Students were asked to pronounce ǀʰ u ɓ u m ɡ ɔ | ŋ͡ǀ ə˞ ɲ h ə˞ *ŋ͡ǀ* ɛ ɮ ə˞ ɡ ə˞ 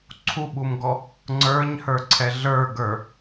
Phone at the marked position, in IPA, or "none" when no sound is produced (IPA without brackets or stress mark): ǀʰ